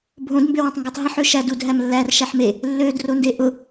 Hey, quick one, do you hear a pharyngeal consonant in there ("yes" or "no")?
yes